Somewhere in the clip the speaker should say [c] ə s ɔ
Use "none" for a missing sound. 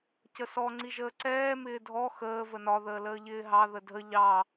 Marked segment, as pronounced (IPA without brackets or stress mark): c